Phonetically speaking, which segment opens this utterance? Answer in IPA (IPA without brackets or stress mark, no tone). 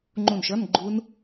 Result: ŋ͡ǃ